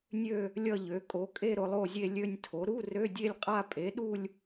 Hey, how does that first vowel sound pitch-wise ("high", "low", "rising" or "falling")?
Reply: falling